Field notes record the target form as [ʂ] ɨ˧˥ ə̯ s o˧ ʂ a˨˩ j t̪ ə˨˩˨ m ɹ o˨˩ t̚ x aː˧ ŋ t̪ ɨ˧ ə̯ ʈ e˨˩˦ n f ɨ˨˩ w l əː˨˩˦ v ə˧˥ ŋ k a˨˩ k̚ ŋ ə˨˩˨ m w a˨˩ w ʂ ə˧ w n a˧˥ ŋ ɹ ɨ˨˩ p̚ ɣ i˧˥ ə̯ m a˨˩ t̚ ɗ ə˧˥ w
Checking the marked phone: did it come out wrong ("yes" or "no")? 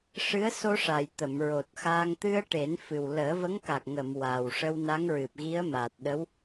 no